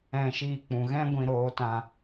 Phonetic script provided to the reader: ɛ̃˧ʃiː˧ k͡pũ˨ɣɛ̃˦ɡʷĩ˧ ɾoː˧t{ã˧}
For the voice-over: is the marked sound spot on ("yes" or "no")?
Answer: yes